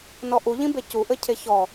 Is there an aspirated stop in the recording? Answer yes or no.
yes